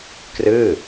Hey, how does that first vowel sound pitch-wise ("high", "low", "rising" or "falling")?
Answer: falling